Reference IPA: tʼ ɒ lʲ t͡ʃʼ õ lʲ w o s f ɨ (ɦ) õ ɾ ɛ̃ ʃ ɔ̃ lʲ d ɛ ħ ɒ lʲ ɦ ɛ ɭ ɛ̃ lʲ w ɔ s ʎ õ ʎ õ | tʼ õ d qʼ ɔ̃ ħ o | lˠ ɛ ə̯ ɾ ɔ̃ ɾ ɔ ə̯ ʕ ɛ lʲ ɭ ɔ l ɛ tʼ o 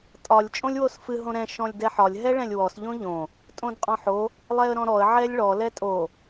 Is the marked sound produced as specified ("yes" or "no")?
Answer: yes